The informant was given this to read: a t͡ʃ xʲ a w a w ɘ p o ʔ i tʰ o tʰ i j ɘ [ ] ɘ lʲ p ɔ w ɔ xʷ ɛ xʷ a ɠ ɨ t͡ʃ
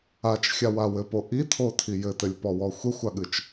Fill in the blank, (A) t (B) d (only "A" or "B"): A